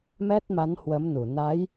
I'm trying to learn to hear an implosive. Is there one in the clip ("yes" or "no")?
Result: no